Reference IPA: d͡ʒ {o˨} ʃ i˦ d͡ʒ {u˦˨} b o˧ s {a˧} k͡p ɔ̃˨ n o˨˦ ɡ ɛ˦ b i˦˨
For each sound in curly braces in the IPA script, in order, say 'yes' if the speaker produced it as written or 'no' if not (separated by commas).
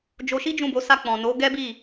no, no, yes